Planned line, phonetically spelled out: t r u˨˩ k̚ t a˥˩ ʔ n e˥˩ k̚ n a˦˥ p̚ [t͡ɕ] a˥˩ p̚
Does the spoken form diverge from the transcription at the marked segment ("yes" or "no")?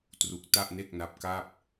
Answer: yes